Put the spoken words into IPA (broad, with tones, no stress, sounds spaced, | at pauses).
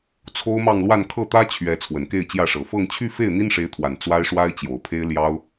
t͡sʰ o˥ ʊ̯ m ɑ˥˧ ŋ l w a˥˧ n kʰ ɤ˥˩ t̪ ä˥ t͡ɕʰ ɥ ɛ˧˥ t͡sʰ w ə˨˩ n k e˥˧ ɪ̯ t͡ɕ j ä˥˩ ʂ ɤ˨˩ f ɤ˥˧ ŋ t͡ɕʰ y˥˧ f e˥˩ ɪ̯ n̪ i˥ n ʂ e˧˥ ɪ̯ t̪ʰ w a˨˩ n t͡s w a˥ ɪ̯ ʂ w a˥ ɪ̯ t͡ɕ j o˨˩ ʊ̯ pʰ e˥ ɪ̯ l j ɑ˥ ʊ̯